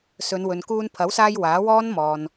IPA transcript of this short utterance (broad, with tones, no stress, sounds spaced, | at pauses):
s ɵ˨˧ n w ɵ˨ n k uː˧ n pʰ ɐ˨˥ w s aː˧ j w aː˨˥ w ɔː˥ n m ɔː˨ n